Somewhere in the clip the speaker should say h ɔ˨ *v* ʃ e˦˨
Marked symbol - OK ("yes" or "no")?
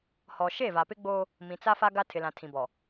no